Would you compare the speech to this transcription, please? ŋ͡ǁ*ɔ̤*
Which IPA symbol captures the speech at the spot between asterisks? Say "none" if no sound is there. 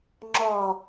ɔ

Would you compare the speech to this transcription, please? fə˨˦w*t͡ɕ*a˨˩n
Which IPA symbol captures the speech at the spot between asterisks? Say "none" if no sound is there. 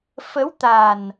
t̪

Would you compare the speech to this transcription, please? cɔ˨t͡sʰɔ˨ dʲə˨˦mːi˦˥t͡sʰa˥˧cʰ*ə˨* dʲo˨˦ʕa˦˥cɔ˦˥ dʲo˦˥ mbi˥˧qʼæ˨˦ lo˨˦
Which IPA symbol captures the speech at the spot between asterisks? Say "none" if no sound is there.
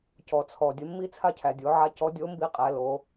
æ˨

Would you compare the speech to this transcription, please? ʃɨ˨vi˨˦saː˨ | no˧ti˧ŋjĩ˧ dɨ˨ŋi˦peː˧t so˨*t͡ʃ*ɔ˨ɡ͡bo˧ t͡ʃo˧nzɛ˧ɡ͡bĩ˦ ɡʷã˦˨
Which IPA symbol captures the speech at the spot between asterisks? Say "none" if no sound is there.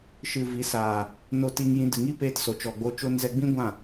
t͡ʃ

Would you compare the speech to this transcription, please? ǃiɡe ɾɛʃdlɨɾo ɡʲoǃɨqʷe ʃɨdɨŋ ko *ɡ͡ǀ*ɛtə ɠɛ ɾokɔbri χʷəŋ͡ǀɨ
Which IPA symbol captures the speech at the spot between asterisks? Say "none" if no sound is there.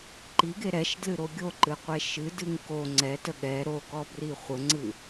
ŋ͡ǀ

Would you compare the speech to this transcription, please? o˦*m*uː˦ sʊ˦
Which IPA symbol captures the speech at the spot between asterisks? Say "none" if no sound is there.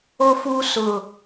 f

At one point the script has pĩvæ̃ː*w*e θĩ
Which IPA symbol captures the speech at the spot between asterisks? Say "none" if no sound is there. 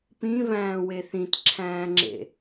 w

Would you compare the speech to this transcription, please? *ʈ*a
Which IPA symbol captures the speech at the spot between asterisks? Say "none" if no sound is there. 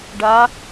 ɖ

